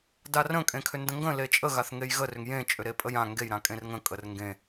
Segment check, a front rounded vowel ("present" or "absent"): present